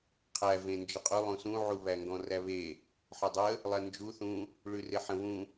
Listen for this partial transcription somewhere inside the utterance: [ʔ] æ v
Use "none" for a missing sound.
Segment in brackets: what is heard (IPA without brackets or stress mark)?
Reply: qʰ